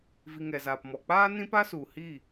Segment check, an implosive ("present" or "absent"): absent